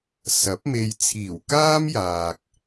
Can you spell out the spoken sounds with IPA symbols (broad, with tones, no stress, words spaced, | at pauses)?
sɐ˨˥p̚me˧j t͡sʰiː˨˩wkaː˥mjaː˨k̚